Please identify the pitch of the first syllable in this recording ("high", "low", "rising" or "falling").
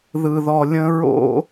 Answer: low